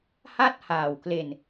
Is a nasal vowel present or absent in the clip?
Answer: absent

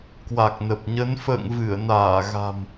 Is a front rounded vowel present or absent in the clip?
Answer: absent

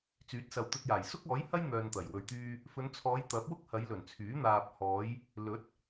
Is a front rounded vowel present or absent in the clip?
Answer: present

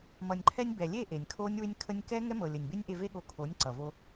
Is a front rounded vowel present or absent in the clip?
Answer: present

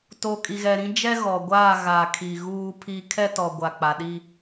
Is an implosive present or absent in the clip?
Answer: present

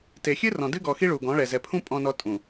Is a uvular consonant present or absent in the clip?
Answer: absent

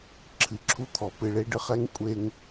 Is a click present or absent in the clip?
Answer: present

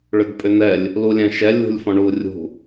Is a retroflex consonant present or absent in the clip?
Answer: present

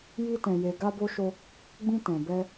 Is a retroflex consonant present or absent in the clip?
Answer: absent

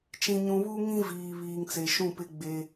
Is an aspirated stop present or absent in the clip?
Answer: absent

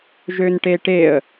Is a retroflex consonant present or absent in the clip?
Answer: present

